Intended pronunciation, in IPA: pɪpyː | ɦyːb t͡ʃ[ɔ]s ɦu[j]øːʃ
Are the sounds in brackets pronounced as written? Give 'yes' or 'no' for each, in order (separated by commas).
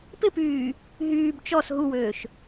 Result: yes, no